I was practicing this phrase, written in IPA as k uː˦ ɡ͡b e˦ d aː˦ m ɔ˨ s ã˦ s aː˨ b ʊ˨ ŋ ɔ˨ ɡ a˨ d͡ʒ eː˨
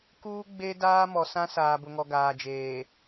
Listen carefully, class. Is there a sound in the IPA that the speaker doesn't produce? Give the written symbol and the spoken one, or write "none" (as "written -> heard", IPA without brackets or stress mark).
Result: a˨ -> aː˨